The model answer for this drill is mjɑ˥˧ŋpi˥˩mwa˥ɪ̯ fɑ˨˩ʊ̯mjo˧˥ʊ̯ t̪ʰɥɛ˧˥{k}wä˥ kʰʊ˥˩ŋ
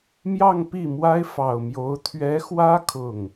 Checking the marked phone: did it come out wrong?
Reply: yes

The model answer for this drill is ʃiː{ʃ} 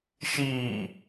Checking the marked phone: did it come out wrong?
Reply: yes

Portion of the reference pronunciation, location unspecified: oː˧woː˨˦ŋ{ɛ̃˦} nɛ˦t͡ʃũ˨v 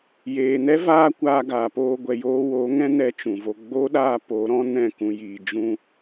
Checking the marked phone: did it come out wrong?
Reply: no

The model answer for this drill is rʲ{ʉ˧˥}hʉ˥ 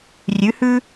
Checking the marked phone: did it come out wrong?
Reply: no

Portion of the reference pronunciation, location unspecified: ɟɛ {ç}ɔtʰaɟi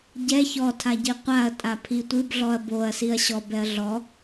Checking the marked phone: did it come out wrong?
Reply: no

